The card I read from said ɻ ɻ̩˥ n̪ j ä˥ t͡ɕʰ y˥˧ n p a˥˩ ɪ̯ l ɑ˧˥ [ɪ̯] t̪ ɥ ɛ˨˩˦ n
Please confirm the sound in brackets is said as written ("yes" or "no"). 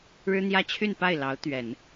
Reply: no